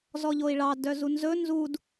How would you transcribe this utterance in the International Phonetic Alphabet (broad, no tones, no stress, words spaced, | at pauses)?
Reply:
zɔʎoi̯ɭɑ dœzunzɵ nzud